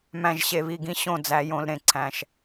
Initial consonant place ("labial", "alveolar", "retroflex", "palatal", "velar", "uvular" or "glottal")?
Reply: labial